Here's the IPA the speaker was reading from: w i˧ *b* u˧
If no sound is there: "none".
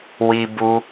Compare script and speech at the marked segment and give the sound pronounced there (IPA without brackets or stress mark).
b